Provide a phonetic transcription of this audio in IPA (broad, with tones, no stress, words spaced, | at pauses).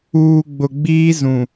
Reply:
uː˨ɡ͡bʊ˨ ɡ͡biː˦zũ˨